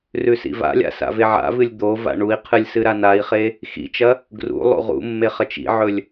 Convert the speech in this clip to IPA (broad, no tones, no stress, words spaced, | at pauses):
rʉsḭva̰lʲa̰ sa̰veʕa̰vɨlʲ d̪o va̰ɳui̯qʰɨlʲ sɨɾanai̯χe | xḭt͡ʃɐ | ɡrṵ lˠṵʁṵmːe χɐt͡ʃḭʕɵlʲ